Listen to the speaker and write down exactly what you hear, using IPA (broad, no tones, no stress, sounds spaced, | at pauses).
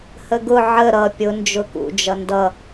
h ə ɡ ʊ ʕ ə ɾ ʌ pʲ ʊ n d͡ʒ ʊ k ṵ d͡ʒ ʌ n d ʌ